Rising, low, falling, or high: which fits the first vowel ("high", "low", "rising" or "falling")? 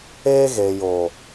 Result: high